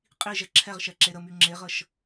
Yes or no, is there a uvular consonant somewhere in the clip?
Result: yes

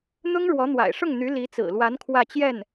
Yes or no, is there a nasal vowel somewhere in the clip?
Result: no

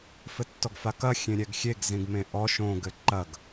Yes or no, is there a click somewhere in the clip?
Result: yes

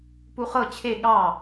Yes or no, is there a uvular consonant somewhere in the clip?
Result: yes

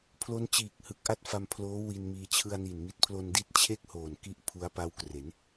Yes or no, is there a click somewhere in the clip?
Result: no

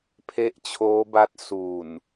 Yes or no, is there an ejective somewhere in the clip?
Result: no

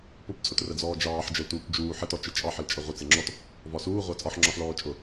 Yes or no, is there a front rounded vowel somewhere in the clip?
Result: no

